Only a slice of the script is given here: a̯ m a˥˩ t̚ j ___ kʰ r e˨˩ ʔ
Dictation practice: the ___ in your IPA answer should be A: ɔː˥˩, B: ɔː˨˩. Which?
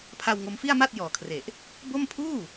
B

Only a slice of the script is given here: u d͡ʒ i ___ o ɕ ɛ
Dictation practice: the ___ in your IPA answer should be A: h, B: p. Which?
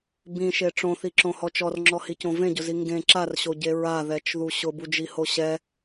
A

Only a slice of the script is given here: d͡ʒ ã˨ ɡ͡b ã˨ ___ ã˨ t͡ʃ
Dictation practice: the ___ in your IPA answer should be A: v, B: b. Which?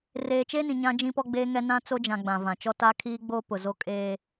A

